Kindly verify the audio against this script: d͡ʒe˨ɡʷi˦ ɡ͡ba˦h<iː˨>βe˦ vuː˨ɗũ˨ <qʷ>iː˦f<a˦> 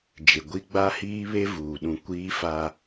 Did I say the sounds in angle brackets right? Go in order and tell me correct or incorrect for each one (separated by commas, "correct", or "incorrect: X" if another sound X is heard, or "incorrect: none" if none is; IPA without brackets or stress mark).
incorrect: iː˦, incorrect: kʷ, correct